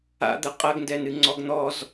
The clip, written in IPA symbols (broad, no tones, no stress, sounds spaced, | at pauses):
a̰ d̪ ɐ qʼ ɐ ɡ n d ɛ n ɨ ŋ͡ǀ ɔ ɡ n̪ ɔ z